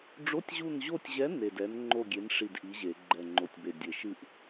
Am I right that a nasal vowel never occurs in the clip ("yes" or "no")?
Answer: yes